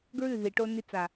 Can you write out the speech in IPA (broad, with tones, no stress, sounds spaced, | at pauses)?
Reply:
ɡ ɹ ʉ˦˨ ð i˨ ʈ o˧ n i˧ t͡s a˨